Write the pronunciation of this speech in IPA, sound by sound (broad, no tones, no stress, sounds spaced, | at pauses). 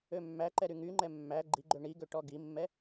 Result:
ø mː æ ǃ ɛ ɾ y ŋ y ŋ͡ǃ ɛ mː æ ɡ͡ǃ i ɡ͡ǃ ø ɳ i ɡ ø ʈ ɔ ɡ i mː ɛ